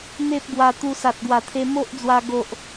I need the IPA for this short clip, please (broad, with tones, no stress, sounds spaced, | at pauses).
n̪ e˦ p̚ ɡ w a˧ t̪ u˧ s a˨ t̚ ɡ w a˨˩ t̪ʰ e˧ m o˦ ʔ d͡z w a˧ ɡ o˨ ʔ